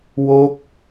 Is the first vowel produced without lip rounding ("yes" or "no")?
no